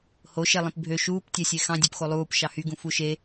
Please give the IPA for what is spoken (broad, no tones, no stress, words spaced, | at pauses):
hoʃelˠĩp bʱø ʃuːptʲæsʲe xɑ̃dʲøpxo lˠuːp ʃɑhyɡũ fuʃe